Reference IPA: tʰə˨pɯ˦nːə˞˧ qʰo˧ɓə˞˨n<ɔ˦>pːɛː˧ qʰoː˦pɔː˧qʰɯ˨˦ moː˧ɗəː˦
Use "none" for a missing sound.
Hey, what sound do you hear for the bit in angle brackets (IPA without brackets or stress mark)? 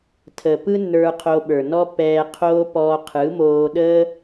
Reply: ɔ˦